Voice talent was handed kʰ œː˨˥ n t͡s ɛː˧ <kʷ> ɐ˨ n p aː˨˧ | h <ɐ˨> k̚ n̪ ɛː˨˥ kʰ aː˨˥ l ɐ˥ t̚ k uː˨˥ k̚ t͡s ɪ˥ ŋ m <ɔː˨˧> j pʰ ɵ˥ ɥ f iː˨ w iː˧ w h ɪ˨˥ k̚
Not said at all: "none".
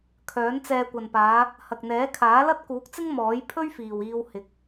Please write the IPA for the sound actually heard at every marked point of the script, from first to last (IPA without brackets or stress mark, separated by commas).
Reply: kʷ, ɐ˨, ɔː˨˥